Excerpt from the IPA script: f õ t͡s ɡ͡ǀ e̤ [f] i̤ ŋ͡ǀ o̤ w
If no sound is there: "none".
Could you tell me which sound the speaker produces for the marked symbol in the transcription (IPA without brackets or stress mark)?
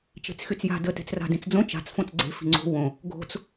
f